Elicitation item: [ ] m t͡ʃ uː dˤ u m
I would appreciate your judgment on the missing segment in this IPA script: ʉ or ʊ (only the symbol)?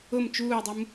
ʊ